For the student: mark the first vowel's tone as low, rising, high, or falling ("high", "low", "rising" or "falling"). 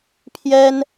high